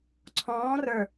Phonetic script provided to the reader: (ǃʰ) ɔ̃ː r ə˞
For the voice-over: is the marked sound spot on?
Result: no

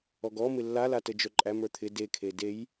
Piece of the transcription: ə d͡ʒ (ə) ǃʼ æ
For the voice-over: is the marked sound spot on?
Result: no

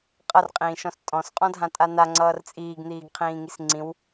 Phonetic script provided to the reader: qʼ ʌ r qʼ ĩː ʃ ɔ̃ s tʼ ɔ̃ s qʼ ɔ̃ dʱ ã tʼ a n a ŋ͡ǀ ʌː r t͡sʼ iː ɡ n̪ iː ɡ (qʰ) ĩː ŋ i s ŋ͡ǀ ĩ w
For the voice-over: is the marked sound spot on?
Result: yes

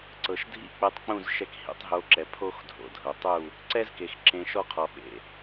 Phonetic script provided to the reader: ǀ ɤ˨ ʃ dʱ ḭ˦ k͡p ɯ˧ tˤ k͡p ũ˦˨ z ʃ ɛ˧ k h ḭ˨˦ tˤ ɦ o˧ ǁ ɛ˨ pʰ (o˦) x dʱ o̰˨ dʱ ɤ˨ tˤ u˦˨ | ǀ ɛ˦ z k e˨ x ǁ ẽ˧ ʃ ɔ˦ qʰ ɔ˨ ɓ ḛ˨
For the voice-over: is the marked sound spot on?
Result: yes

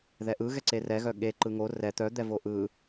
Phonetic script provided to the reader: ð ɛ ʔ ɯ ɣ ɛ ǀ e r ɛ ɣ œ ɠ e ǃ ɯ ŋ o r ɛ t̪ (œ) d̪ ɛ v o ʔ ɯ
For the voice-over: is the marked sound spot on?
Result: yes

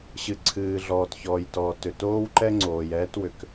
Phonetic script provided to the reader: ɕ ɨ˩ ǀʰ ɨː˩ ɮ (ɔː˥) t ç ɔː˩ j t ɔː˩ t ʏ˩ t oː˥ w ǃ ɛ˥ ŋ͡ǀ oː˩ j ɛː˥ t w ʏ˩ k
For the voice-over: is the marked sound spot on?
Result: no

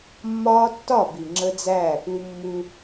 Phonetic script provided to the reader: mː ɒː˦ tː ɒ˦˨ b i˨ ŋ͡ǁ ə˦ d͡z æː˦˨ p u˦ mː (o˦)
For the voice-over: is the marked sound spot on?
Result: no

